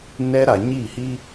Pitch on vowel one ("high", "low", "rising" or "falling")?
high